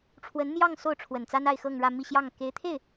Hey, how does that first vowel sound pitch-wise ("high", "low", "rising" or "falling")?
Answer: rising